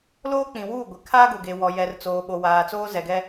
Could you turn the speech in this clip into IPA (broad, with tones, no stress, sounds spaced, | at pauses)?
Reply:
l oː˦ k͡p ĩ˨ w uː˦˨ ɡʷ ɪ˨ kʰ aː˦ ɡ ʊ˨ ɡ e˨ w ɔ˨ j ɛ˨ r t͡s oː˨ ɓ o˨ w aː˨ t͡s oː˦ z ɛ˨ ɡ ɛ˦